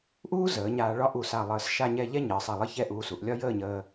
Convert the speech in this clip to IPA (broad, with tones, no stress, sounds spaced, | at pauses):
ʔ uː˥ z əː˩˧ ɲ aː˧ ɭ ɒ˥ ʔ u˧˩ s a˧˩ lˠ əː˧˩ s ʃ a˥˧ ɲ ɛ˥˧ ʎ ɛ˥ ɲ əː˩˧ sˤ ɛ˧˩ lˠ ə˥˧ ç ɛ˥˧ ʔ uː˧ s u˩˧ ʔ lʲ ɒ˥ j əː˥˧ ɲ əː˧